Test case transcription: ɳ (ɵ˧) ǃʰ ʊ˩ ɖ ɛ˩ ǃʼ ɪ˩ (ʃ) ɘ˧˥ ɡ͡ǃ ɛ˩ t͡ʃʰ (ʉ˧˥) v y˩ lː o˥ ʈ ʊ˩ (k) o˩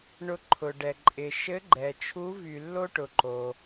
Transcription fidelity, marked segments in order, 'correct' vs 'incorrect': incorrect, correct, incorrect, incorrect

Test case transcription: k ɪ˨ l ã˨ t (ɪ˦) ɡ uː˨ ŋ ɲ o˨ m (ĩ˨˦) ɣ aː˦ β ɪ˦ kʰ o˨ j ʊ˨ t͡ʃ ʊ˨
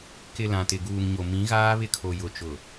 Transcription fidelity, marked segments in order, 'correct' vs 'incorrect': incorrect, correct

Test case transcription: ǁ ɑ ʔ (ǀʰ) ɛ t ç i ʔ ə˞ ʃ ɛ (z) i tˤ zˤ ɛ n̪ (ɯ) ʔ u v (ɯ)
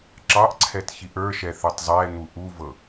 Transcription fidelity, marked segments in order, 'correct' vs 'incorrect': correct, incorrect, incorrect, incorrect

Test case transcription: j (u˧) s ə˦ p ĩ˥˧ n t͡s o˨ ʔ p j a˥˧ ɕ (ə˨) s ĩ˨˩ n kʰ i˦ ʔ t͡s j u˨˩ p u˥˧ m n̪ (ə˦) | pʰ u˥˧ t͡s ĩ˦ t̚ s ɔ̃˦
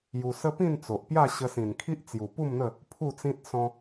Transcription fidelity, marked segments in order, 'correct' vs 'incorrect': correct, incorrect, incorrect

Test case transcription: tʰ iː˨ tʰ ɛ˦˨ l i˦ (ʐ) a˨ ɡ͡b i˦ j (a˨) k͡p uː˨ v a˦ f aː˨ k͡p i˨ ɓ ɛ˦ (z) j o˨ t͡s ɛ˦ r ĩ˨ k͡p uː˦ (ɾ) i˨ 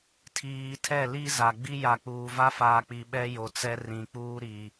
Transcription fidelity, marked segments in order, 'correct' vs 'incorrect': incorrect, correct, incorrect, correct

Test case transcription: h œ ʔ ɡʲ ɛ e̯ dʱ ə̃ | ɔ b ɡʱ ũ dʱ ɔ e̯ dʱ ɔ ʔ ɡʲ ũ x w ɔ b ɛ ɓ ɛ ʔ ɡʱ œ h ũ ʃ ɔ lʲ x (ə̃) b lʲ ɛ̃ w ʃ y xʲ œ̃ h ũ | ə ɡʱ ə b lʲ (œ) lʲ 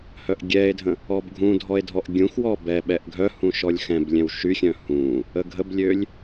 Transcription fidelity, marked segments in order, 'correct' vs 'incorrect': incorrect, incorrect

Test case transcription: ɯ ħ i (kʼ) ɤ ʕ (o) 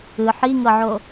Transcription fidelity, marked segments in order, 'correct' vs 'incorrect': incorrect, correct

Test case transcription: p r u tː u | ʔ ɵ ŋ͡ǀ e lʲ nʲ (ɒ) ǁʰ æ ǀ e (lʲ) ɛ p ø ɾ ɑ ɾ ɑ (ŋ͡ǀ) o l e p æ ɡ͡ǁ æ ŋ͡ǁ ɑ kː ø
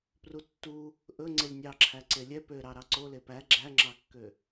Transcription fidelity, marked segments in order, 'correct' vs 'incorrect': incorrect, correct, incorrect

